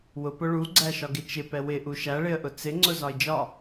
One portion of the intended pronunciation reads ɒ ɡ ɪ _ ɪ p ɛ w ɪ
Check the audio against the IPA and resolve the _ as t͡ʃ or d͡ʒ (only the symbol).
t͡ʃ